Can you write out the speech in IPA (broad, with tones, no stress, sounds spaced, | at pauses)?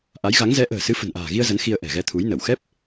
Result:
ʔ a˨˦ j ɣ a˨˦ ŋ z ɛ˨˦ ʔ ə̤ː˨˩ s ɨ˨˦ f ə̤˨˩ n ʔ a̤ː˨˩ ɣ i˧ ə̯ z ə˨˦ n x i˧ ə̯ ʔ ɛ̤˨˩ ɣ ɛ˧ t̪ʰ u˨˦ j n ə˧˩ w x ɛ˦˥ p̚